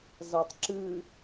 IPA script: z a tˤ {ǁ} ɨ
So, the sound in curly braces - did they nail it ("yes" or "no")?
yes